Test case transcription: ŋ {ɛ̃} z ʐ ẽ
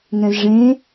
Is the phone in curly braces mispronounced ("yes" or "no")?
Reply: no